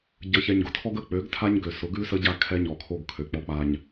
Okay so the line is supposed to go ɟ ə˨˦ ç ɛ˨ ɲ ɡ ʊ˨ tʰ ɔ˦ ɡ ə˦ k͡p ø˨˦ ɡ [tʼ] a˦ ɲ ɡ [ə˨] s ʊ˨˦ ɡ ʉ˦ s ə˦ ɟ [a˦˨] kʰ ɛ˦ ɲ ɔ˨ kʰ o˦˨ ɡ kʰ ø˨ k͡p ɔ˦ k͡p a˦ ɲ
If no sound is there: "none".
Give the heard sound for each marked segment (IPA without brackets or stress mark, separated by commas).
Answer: tʰ, ø˨, a˦˨